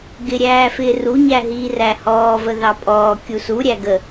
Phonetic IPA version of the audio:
ɡ ɪ ɾʲ æː f ɪː r u ɲ æ ɦ iː r æ h ɔː v ə ð ɑ pʼ ɔː kʲ u s u ɾʲ æ ɡ ə

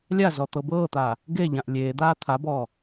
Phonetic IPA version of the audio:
lʲ a z ɔ t̪ ɤ b ɤː t̪ aː | ɡ e ʎ ã ʔ lʲ eː d̪ aː t̪ʰ a b ɔː

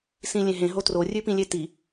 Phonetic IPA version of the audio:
s ĩ lʲ ẽ ɦ ẽ ɦ o t r o rʲ ʉ p ĩ lʲ e t i

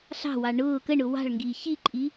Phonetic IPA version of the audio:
ɬ ɑ̤ w ɑ ɳ ʊː k ə ɳ ʊ w ɑ̤ ɭ ŋ ɡ iː ç i ǃʼ i

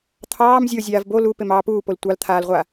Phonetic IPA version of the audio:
t̪ʰ ɑː m zʲ o zʲ aː v b o l u p e m ɑː p uː p o l tʷ ɑ l t̪ʰ aː l ʁʷ a

